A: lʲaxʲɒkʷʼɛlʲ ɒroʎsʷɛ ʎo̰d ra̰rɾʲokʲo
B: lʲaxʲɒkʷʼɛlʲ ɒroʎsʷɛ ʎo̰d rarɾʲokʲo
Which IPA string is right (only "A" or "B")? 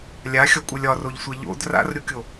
A